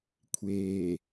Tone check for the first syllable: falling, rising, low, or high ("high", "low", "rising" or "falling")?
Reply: low